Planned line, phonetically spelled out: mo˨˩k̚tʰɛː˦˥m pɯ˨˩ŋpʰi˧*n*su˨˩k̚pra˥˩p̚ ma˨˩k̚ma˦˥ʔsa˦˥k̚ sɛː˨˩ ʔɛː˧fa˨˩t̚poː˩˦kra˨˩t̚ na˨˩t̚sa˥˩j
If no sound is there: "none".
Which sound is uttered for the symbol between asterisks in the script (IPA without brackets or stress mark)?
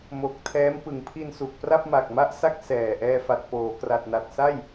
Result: n